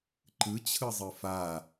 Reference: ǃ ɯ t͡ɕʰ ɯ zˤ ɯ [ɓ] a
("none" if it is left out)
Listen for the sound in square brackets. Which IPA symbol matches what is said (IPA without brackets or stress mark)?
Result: f